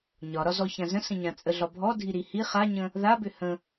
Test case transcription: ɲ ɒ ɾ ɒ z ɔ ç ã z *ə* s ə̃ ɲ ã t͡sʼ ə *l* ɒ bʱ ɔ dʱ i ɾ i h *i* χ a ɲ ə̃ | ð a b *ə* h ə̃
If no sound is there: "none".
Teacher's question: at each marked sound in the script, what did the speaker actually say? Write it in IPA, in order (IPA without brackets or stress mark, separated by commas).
ə̃, ɮ, i, ʏ